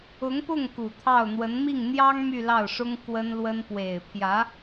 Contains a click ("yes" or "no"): no